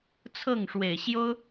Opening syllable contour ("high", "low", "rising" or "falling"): falling